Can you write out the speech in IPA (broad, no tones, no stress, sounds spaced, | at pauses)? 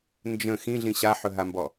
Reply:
n d͡ʒ ə̃ x ĩ ɮ ĩ ɕ a ħ ɵ ɦ a m b ɔ